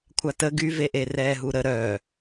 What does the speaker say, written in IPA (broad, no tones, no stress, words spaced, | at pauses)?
kʷʰatə ɡyveʔe rɛːɦuɾə ɾœ